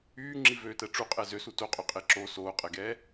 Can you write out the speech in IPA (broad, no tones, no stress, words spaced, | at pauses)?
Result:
yːŋ͡ǁivøːtɛ ʈ͡ʂuqʼɛ zøsu toqʼøqʼe ǁo soːqʼɛɡɛː